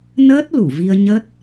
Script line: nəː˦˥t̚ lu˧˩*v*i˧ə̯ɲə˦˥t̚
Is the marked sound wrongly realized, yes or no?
no